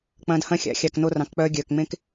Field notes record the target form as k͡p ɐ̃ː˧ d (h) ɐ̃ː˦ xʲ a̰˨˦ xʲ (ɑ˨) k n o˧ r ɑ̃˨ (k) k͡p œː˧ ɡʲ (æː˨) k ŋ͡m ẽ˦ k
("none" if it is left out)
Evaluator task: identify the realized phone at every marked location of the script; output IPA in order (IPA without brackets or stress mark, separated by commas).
h, ɑ˨, k, œː˨